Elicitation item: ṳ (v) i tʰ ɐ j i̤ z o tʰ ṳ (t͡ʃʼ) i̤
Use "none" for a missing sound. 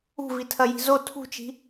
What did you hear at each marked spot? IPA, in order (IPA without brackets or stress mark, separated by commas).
v, t͡ʃ